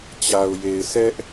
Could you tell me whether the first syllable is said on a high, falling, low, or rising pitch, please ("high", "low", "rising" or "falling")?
low